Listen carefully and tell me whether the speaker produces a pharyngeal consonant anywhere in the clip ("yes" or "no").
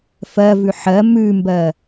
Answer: yes